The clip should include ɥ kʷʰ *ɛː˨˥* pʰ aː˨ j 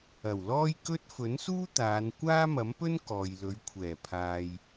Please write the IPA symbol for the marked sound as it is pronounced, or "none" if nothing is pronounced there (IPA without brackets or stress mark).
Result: ɛː˨˩